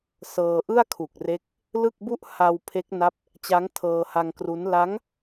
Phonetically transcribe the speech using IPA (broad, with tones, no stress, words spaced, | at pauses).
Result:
sɤː˧ʔɯ˥˩a̯kʰu˨˩k̚re˦˥k̚ | lɯ˥˩k̚bu˥˩ʔ ha˧w pʰe˦˥k̚ na˦˥p̚ | t͡ɕa˦˥ŋ tʰɤː˧ha˧ŋkru˦˥n la˦˥ŋ